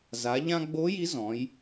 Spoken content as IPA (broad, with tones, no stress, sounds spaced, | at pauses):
z a˩˧ ʎ ã˧ ɡ͡b o˧˥ j i˧˥ z ɔ̃˩˧ j